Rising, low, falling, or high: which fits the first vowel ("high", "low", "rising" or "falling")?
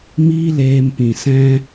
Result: high